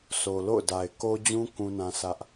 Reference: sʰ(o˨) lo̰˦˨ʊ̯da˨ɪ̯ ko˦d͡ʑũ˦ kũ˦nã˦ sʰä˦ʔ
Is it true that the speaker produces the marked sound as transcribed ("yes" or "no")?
yes